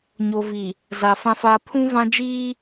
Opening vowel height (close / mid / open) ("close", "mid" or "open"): mid